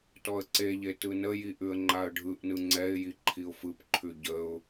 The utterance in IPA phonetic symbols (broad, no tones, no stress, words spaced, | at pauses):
tɔə̯ǀeʎe tɯnəji ʔʉə̯ŋ͡ǃaə̯ɖʱɯʔnɯ ŋ͡ǀɛɪ̯ji ǃʰiʊ̯fɯpǃʰʉ ɟəʊ̯